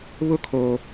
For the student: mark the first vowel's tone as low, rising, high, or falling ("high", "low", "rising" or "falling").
high